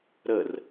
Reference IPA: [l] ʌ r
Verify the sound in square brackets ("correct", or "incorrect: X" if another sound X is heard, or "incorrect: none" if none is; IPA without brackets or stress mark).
incorrect: ɾ